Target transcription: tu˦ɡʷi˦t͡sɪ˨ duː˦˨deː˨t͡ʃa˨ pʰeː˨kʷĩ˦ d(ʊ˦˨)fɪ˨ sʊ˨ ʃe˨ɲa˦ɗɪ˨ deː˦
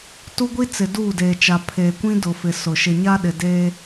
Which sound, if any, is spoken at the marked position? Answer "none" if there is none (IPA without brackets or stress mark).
ʊ˨